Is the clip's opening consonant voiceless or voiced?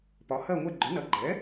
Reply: voiceless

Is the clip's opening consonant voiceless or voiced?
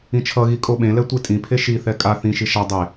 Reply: voiceless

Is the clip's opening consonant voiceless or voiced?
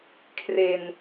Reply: voiceless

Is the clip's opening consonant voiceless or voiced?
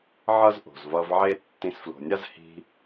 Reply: voiced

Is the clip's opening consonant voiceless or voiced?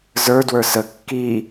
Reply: voiced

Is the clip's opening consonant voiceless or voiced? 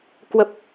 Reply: voiceless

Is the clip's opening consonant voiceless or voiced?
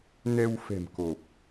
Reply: voiced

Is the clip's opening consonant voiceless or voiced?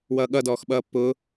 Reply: voiced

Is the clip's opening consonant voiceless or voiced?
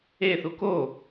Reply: voiceless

